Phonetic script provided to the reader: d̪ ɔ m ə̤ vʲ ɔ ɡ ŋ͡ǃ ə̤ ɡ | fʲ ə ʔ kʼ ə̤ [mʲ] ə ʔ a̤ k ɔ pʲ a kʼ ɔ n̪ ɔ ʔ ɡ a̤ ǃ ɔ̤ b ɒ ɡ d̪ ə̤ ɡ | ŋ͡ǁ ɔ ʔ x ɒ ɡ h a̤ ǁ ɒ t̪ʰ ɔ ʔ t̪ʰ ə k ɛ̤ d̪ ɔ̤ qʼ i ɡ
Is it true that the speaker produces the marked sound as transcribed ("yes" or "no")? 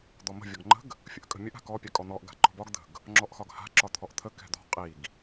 yes